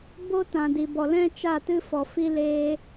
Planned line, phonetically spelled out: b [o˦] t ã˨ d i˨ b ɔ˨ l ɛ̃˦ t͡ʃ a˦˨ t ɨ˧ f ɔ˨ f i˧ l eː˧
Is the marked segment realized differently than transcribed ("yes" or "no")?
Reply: no